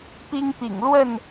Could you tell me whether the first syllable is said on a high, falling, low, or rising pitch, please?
high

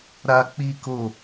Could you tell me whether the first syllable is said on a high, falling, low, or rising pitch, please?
high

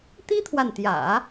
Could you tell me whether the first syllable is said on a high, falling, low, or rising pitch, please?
high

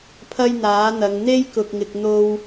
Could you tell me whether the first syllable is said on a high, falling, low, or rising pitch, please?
high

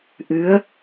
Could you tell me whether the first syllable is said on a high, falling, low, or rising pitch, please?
rising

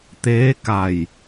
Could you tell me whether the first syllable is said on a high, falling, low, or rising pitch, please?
rising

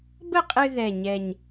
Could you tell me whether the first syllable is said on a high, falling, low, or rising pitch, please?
falling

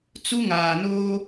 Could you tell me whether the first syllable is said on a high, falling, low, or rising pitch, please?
high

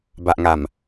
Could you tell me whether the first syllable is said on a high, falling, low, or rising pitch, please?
low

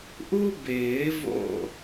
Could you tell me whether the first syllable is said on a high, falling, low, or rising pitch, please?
high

